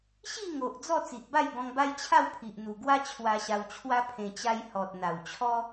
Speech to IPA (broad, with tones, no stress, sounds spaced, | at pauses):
ɕ i˥˧ ŋ o˨ ʔ d͡z ɔ˥˧ t͡s i˨ ʔ b a˥˧ j ɡ ɔ̃˧ ŋ b a˦ j t͡ɕʰ a˥˧ w pʰ i˨ ʔ n̪ u˨˩ ɡ w a˦ t͡ɕʰ w a˧ ɕ a˧ w t͡ɕʰ w a˦ pʰ ẽ˧ t͡ɕ a˦ j h ɔ˨ t̚ n̪ a˨˩ w t͡ɕʰ ɔ˦